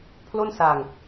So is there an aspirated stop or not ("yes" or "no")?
yes